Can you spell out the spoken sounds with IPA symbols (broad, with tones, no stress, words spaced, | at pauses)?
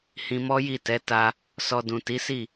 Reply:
hĩ˧mɔ˦ji˦˨tɛ˨˦ ta˧ | sɔ˧dũ˨ ti˨˦si˦˨